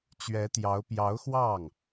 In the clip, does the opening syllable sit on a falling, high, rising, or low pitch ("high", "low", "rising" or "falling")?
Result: rising